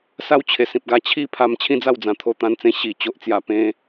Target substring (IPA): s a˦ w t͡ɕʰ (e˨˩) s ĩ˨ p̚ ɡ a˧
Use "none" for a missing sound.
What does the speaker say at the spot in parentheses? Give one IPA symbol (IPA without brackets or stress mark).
e˨˩